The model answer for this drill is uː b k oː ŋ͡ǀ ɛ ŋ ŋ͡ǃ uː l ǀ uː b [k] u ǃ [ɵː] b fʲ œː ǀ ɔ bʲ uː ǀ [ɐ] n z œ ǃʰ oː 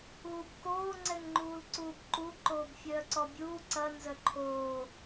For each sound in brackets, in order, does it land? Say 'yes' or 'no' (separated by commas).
no, no, yes